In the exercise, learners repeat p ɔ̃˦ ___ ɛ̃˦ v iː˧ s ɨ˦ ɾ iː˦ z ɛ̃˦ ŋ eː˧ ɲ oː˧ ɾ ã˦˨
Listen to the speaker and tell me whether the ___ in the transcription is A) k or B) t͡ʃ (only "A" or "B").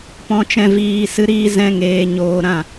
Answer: B